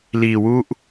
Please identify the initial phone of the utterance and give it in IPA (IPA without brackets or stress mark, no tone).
l